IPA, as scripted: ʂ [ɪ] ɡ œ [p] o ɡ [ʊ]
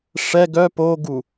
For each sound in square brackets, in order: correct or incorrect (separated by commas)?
incorrect, correct, incorrect